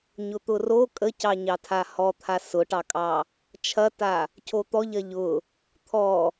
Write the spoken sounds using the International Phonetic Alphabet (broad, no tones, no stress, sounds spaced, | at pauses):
ɲ ʊ t̪ ʊ r o kʼ ə c ɑ ɲ ɑ tʰ a h ɔ t̪ʰ a s ʊ ʈ ɑ kʼ ɑ | t͡ʃʰ ɐ t a | cʰ o t̪ ɔ ʎ ɐ ʎ ʊ | t̪ʰ ɔ